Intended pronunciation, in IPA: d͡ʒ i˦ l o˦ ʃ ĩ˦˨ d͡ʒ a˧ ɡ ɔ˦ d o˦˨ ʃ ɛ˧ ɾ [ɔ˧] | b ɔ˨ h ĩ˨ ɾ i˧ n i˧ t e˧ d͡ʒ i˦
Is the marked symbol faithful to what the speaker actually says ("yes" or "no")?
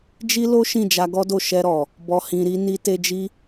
no